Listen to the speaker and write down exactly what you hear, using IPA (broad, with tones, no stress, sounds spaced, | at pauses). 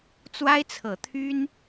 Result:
t͡s w a˥ ɪ̯ t͡sʰ ɤ˨˩ t̪ʰ y˥ n